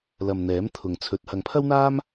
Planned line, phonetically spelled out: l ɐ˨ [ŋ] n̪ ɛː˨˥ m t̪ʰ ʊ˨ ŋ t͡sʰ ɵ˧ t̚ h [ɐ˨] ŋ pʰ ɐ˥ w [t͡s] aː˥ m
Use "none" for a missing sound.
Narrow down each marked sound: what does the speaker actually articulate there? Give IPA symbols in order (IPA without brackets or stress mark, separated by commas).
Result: m, ɐ˨, n̪